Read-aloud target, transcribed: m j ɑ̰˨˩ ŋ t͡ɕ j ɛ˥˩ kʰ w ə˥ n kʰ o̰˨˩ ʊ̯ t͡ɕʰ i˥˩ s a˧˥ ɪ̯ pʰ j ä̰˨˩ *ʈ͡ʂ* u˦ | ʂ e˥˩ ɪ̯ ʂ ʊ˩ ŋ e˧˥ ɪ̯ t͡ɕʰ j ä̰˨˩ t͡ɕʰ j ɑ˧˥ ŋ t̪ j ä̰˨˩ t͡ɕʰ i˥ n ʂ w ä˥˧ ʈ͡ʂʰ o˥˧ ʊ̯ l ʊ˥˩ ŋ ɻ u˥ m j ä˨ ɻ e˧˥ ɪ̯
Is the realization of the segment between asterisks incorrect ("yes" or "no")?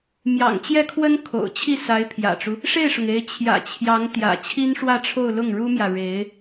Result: no